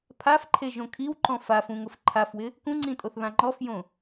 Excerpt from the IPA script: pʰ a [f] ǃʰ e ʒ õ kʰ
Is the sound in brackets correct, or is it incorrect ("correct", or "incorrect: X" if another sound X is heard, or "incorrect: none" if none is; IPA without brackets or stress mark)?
correct